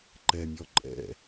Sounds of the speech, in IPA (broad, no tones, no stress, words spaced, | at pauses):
ǃɛmʲɔ ǃʼɛ̰